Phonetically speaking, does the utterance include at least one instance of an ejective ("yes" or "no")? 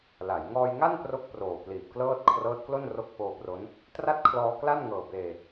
no